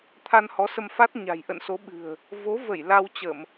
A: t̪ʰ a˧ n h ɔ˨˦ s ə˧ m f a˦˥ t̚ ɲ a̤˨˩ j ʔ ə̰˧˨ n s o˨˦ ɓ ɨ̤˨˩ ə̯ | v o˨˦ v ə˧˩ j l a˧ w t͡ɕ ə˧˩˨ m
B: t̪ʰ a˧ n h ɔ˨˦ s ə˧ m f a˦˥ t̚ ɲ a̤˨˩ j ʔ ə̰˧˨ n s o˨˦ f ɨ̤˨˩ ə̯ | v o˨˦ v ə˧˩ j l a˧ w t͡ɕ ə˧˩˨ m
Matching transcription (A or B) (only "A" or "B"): A